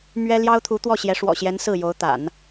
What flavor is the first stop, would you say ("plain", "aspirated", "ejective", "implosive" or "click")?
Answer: aspirated